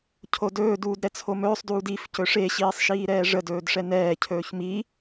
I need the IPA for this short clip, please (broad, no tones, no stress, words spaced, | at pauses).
cʰodɵːduːd ɾɛt͡sʰomɵːsˤduːd if cɵʂeɕiːsˤ ʃiːɾɛːʐədɵːd ʂɛnɛːcʰɵːç mi